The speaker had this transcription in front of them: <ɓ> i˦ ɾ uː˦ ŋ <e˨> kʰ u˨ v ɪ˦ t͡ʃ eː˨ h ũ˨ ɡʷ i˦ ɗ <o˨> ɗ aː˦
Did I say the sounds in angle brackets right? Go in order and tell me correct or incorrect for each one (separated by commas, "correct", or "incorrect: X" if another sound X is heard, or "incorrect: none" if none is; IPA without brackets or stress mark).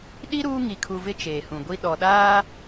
incorrect: ɗ, incorrect: i˨, incorrect: ɔ˨